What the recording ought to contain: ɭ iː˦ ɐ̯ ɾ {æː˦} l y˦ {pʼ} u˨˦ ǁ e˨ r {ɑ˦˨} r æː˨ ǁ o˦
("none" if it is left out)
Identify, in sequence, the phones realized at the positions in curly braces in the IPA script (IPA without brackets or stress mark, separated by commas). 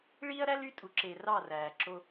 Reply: æ˦, tʼ, ɑ˦˨